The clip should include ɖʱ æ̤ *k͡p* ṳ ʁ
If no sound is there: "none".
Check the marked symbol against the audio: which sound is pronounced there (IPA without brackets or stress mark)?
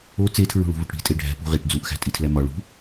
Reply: p